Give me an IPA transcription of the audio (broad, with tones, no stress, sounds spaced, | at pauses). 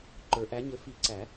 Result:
ǃ ə˞˨˩˦ ʔ æ˩˥ ɲ ɘ˩˥ f i˨˩˦ ǀ æ˨˩˦